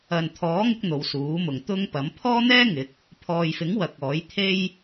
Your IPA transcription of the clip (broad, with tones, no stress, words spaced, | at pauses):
ɐ˨nt̪ʰɔː˨˥ŋɪ˧k̚ n̪o˨˧wsuː˨˥mʊ˨ŋt̪ʊ˥ŋ pɐ˨˥m pʰɔː˥n̪ɛː˥ŋɪ˨˥k̚ | pʰɔː˨jfɪ˨˥ŋ wɐ˨k̚ɔː˨˥j t̪ʰe˥j